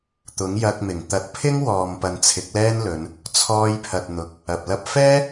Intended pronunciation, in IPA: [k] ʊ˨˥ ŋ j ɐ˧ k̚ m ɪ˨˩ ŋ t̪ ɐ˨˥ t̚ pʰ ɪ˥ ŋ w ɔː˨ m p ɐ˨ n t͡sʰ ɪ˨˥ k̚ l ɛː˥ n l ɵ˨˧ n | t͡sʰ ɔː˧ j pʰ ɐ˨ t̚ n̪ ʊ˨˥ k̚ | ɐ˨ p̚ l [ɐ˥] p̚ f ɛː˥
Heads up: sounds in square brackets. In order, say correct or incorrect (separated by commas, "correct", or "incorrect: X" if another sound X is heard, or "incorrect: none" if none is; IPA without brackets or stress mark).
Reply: incorrect: t̪, correct